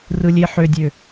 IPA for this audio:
r ɯ lʲ e ħ ø dʲ ø

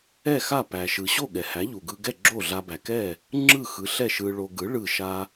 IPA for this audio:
ɛ˥˩ x a˥˩ p æ˩ ʃ ɯ˩ ɕ o˥˩ ɠ ɛ˩ h æ˩˥ ʎ u˩ ɡ ɯ˧ ɡ ɛ˥˩ ɡ͡ǁ o˥˩ ɮ a˧ b æ˩ k ɛ˥˩ | ŋ͡ǁ ɯ˥˩ x ɯ˩˥ ɬ ɛ˥˩ ʃ ɯ˧ ɭ o˧ ɡ ɯ˩˥ ɭ ɯ˥˩ ʃ a˥

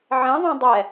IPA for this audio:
ʕ ɛ̃ ðˤ õ dˤ ɛ

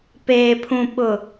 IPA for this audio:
p eː˨ pʰ ũ˨ ɓ ʊ˨

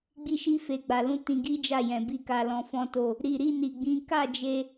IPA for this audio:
ɡ͡b i˧ ʃ i˧ f e˨ ɡ͡b a˨ l ũ˨˦ t ĩ˧ ɡ i˦ d͡ʒ a˦˨ j ɛ̃˨ b i˧ k a˧ l ɔ̃˧ f ɔ̃˦ t o˦˨ | ɾ i˨ ɾ i˧ n i˨ ɡ͡b ĩ˨˦ k a˦˨ d͡ʒ e˧

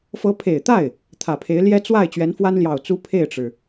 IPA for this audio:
f ɤ˧˥ pʰ e˨˩ ɪ̯ t̪ a˥˩ ɪ̯ | t̪ʰ ä˨˩ pʰ e˧˥ ɪ̯ l j ɛ˥ t͡s w a˥˩ ɪ̯ t͡ɕ ɥ ɛ˧˥ n f w a˥ n l j ɑ˨˩ ʊ̯ t͡s u˥ pʰ e˥˩ ɪ̯ ʈ͡ʂ ɻ̩˩

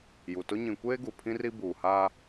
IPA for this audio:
j u˨ t ʊ˦ ɲ ĩ˨ kʷ eː˦ ɡ u˨ pʰ ĩ˦ r i˦ b uː˨ h aː˦

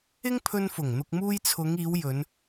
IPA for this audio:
ɪ˥ ŋ pʰ ɵ˧ n f ʊ˨˩ ŋ n̪ ʊ˨ k̚ m uː˧ j t͡sʰ ʊ˨˧ ŋ iː˨˧ w j ɵ˨˧ n

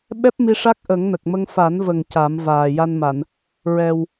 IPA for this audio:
ɓ ɛ˦˥ p̚ m i˧ ʂ a˦˥ k̚ ʔ ə˨˩˦ ŋ n ə˨˩ k̚ m ə˧ ŋ f a˨˩˦ n v ə˨˩ ŋ c a˨˩˦ m v aː˨˩ j a˧ n m a˨˩˨ n | ɹ ɛ˨˩ w

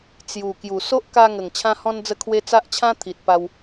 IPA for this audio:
t͡s j u˨˩ k j u˨˩ s o˦ ʔ k a˧ ŋ ə˨˩ ŋ t͡ɕʰ ã˧ h ɔ̃˧ n d͡z ə˧ kʰ w e˧ t͡s a˦ ʔ t͡ɕʰ ã˦ t̪ʰ i˨ t̚ p a˧ w

